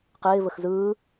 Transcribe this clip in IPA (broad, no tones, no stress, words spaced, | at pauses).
qɪːvəx zɯː